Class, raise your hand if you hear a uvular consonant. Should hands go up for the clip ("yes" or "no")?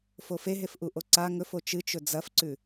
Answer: no